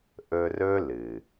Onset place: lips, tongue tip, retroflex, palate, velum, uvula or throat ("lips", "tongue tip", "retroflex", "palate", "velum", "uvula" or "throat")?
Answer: throat